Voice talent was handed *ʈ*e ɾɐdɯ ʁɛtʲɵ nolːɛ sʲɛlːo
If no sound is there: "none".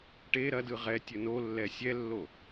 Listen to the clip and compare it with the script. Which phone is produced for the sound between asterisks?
ʈ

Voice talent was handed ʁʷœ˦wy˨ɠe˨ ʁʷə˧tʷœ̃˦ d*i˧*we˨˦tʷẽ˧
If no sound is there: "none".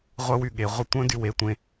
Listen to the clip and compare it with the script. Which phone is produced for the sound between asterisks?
y˧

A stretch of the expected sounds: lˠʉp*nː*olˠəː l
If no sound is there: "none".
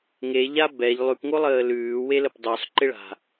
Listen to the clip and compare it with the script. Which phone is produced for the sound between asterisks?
ŋ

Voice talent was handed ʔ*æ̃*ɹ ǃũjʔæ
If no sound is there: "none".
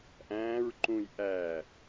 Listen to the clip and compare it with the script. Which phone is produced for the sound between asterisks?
æ̃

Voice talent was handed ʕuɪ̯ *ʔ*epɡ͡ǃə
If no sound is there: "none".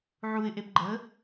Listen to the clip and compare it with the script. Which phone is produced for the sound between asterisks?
ʔ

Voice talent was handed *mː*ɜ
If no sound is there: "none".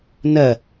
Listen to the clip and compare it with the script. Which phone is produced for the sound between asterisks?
n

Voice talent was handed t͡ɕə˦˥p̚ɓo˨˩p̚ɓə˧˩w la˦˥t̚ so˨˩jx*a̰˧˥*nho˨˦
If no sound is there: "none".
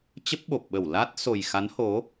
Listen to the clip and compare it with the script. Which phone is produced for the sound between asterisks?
a˨˦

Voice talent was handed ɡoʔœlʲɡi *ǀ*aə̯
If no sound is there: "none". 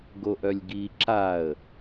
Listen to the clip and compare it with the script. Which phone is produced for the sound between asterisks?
ǁ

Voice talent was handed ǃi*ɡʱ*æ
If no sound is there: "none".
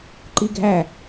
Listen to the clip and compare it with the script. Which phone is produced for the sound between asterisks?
ɡʱ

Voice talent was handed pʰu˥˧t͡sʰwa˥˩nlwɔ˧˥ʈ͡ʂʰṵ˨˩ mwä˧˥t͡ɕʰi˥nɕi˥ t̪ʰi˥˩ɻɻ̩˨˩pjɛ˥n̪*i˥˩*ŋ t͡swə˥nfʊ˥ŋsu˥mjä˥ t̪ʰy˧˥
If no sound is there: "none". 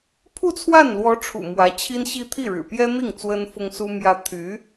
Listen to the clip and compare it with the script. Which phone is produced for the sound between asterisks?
i˥˩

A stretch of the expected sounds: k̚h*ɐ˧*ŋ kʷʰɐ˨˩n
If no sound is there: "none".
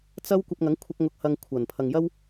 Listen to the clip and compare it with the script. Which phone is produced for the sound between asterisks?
ɐ˧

